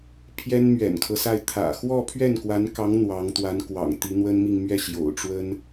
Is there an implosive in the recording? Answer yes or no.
no